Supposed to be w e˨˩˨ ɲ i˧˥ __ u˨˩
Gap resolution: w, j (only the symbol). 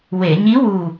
w